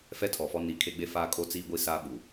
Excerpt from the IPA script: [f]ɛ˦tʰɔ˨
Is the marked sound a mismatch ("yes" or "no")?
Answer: no